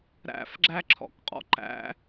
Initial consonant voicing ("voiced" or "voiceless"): voiced